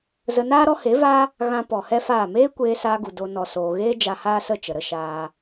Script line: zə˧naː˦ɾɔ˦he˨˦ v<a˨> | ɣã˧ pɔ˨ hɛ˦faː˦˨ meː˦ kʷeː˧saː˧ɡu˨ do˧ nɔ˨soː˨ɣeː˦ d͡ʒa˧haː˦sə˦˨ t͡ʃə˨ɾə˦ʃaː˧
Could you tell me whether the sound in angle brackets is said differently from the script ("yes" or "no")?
yes